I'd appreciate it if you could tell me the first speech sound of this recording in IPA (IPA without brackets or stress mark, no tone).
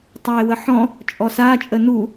tˤ